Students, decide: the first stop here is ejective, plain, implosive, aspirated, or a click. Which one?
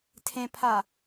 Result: aspirated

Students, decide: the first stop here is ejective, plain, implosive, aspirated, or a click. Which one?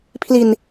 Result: aspirated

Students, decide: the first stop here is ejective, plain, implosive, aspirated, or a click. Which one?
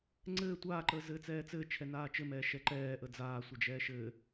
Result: click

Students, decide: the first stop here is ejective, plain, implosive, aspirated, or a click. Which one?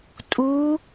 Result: ejective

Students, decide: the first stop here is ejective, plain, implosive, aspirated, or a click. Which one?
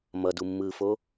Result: plain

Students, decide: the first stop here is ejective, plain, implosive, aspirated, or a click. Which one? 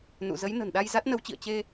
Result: implosive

